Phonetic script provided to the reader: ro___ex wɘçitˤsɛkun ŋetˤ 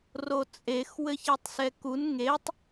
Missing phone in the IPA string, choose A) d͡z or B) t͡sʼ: B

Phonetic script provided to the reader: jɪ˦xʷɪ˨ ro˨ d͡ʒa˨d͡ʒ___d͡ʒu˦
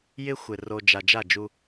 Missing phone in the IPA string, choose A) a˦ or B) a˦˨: B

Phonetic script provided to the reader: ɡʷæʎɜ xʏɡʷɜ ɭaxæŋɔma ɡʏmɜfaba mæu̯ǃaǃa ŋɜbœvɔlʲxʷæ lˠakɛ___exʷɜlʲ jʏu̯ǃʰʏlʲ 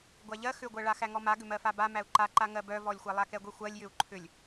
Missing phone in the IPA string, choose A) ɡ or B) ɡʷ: B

